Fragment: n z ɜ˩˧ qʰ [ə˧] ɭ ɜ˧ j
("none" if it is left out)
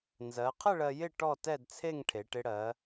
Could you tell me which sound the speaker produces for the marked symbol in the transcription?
ə˥˨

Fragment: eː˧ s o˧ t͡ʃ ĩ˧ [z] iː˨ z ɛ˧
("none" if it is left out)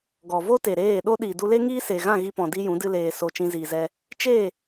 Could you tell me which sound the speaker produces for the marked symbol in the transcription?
z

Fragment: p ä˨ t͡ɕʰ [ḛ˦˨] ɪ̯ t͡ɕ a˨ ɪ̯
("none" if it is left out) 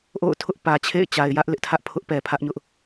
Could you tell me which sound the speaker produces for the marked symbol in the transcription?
ḛ˦˨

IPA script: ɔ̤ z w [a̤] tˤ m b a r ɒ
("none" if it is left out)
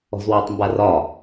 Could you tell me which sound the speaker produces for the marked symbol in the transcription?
a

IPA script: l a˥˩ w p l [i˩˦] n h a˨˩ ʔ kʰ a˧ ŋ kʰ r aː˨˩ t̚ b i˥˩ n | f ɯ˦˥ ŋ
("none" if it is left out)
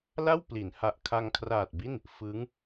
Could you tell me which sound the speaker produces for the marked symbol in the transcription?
i˩˦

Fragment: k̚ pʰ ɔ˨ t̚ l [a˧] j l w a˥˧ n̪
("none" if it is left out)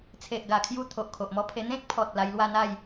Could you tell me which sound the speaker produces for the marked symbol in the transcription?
a˧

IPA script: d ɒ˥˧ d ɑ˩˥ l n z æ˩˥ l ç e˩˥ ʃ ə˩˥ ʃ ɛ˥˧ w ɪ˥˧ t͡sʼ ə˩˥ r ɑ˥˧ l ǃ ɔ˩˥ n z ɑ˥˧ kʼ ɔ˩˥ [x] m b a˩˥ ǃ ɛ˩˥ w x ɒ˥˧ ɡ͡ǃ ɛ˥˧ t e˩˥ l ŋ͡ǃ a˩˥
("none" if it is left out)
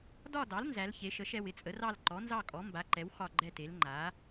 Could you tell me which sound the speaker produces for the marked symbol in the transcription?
none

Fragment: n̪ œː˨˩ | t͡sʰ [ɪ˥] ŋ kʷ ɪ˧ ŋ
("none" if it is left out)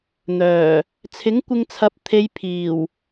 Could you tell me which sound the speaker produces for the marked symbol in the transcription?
ɪ˨˥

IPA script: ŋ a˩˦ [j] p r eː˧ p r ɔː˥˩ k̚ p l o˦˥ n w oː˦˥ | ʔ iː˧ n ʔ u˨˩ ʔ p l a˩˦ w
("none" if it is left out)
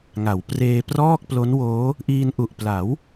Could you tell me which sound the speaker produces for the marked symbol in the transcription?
w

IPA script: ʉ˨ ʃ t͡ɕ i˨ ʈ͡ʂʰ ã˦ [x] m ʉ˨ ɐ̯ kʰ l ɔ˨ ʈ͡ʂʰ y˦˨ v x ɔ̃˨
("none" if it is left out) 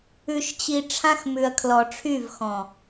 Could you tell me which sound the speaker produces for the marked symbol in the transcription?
x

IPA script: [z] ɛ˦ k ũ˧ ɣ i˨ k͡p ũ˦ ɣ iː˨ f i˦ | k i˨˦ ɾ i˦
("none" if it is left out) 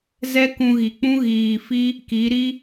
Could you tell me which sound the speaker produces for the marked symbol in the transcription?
z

